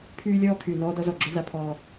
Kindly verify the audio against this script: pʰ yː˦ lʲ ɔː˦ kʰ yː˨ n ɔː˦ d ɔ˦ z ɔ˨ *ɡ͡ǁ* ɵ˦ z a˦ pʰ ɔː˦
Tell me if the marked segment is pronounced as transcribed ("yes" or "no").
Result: yes